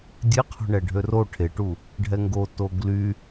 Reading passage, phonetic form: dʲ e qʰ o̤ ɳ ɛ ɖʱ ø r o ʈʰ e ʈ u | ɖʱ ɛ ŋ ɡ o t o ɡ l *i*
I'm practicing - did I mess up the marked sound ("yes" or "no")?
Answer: yes